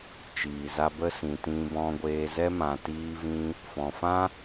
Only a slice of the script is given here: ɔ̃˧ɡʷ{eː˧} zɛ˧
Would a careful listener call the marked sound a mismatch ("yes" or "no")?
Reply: no